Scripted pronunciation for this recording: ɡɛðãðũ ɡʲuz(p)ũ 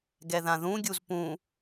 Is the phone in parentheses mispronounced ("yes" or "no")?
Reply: no